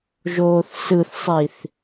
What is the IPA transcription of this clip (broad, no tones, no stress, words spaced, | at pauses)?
ʒoːθsɯθsˤiθ